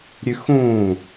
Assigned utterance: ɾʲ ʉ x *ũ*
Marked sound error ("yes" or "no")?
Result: no